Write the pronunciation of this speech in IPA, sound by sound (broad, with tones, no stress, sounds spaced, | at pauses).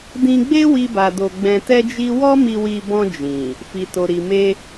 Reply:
d ĩ˧ ɡ͡b e˦ w i˦ b a˧ d o˧ ɡ͡b ɛ̃˧ t ɛ˦ d͡ʒ i˦ w ɔ˦ m i˧ w i˧ b ɔ̃˧ d͡ʒ ĩ˨ | f i˨ t o˨ ɾ i˨ m e˧